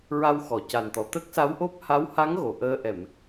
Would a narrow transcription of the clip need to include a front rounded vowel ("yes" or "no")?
no